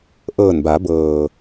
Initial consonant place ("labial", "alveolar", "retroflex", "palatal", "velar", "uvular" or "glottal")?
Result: glottal